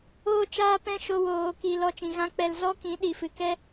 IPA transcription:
oː˧t͡ʃaː˧ pɛ̃˦ ʃo˧woː˨ki˨ lɔ˧t͡ʃĩ˨ ɣã˦k͡pɛ˧l zɔ˦kĩ˨˦ ɗi˨fɨ˨kɛ˦

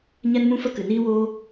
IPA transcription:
ɲɛ˦nmũ˦fə˦ kɨ˨niː˦woː˦

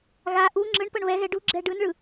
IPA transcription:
ɣa ʔu ŋ͡ǁɯɳpɤɳ βɛɣɛ ɖuɡ͡ǁɛ ɖɯnɭɯ

